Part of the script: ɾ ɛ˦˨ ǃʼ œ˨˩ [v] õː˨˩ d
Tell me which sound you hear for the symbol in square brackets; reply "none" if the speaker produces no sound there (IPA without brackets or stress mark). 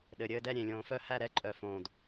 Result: f